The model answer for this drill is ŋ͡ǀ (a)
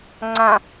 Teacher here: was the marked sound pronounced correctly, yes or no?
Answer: no